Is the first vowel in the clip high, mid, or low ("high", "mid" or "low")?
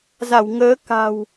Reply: low